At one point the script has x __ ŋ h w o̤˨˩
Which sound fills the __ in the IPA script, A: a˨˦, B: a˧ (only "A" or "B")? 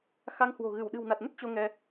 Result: B